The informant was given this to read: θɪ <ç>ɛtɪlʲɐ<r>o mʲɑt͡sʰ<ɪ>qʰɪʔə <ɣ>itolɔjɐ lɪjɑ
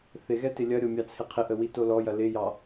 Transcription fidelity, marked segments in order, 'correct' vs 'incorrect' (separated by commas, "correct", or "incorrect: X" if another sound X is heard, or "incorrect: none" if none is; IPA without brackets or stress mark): incorrect: ɣ, incorrect: ɾʲ, correct, incorrect: w